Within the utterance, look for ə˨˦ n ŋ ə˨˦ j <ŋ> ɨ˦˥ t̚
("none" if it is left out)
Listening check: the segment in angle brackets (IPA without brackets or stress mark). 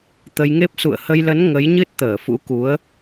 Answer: ɲ